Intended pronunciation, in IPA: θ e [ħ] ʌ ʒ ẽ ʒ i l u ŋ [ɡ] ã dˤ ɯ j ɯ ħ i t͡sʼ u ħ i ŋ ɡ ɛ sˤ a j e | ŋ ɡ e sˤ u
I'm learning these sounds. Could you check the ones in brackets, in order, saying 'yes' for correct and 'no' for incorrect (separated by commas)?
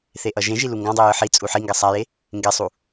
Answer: no, yes